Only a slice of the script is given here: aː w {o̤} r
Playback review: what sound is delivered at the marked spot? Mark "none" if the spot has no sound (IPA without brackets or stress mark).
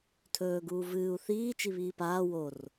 o